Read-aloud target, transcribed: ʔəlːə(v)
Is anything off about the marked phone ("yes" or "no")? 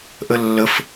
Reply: yes